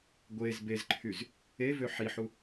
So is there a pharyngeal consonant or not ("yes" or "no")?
yes